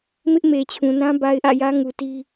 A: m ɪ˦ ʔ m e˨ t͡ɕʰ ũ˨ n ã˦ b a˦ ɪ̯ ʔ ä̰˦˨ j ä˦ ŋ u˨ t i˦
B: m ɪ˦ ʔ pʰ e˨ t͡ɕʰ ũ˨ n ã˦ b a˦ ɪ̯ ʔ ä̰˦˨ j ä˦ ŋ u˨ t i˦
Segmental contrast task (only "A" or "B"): A